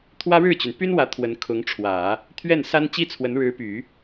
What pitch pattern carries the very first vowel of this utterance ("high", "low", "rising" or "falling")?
high